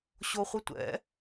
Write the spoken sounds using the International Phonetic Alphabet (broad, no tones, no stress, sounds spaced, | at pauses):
ɕ o χʷ ə tʷ ɛ̰